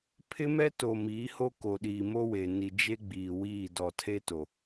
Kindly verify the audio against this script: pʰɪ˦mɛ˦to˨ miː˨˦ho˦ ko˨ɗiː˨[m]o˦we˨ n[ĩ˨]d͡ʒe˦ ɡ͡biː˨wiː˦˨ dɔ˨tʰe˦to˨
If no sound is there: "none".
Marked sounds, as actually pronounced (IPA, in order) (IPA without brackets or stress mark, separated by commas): m, i˨